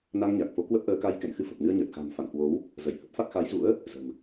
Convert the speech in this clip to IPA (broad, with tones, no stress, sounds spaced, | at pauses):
n a˧ ŋ ɲ a˨˩ k̚ f o˨˦ k w ə˦˥ p̚ ʔ əː˨˦ k a˧ j k ɛ̰˧˨ n x ɨ˧ f ə˨˩ p̚ n ɨ˧ ə̯ ɲ əː˨˩ t̚ x a̤˨˩ m f a̰˧˨ n h w o˨˦ w | z ə˧˩ j h ə˦˥ p̚ f a˦˥ k̚ x a˨˦ j z ṵ˧˥ ə̯ | z ə̤˨˩ m